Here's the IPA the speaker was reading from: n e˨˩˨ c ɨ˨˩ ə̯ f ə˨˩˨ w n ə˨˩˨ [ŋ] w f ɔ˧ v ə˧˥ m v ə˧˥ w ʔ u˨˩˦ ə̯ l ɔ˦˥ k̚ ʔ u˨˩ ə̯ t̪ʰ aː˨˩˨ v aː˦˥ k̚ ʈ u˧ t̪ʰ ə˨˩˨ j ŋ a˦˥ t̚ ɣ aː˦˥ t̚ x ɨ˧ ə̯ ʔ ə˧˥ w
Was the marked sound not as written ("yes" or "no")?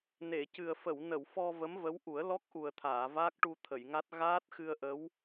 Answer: yes